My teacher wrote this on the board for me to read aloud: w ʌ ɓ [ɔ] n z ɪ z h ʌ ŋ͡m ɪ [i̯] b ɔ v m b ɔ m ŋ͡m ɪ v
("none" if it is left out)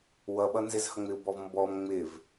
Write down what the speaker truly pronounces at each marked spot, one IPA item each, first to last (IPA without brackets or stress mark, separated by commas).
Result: ʌ, u̯